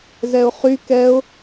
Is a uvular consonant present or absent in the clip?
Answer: present